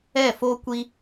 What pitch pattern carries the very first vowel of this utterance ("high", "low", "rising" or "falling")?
falling